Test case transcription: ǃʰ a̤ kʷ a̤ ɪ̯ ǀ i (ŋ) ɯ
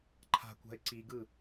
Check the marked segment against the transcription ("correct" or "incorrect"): incorrect